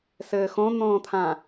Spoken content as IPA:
s ɘː x õ n̪ õː t̪ʰ ã

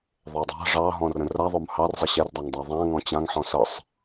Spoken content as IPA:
ðˤ o dˤ a̤ ʐ ɑ ɦ ɔ̃ r ə̃ r a ðˤ o m h ɑ r zˤ ə ɕ ɛ r dˤ a ŋ dˤ a ðˤ ã ŋ ɔ̃ t͡ɕ ã ŋ ħ ɔ̃ s ɤ sˤ

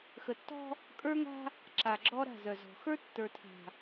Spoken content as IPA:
x ə˨ tː ɔ̤˦ | kʼ ə˞˦ ŋ a̤˦ | ǁ a˨ ɡ͡ǁ ɔ˦ ɾ a̤˦˨ z œ˨ z ɔ̤˨ x ə˞˦ tː ə˞˨ tʰ a̤˨

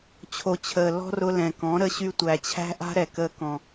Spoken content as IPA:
t͡ɕʰ o˦ t͡ɕʰ əː˧ l ɔ̤˦ r ʊ˧ l ɛ̃˨ k ɔ̃˨˦ ɾ ə˦ ɕ y˦ tʷ æ˧ t͡ɕʰ æ̤˦ ʔ a̤˦ ɾ ɛ˨ k əː˧ k ɔ̃˨

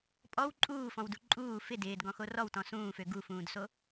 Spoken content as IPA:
pʼ ɔ w ǃʼ uː f ɔ̃ w d u ǃʼ uː f ɪ d ɪː d ɡ ɔ̃ x o r ɔ w t ɔ̃ s ũː f ø ɡ u f ũː d s o

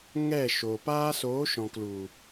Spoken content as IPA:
ŋ ɛ˦˨ ʃ oː˨ p aː˦ s oː˨˦ ʃ ɔ̃˨ k l u˨

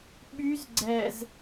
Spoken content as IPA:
ɓ y z ɡ͡ǀ ɛ z

